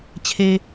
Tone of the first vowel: low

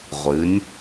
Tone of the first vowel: rising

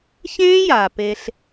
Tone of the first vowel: high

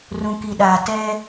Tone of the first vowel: low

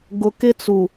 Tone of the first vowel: low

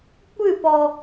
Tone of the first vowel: falling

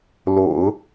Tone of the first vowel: low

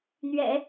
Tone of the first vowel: low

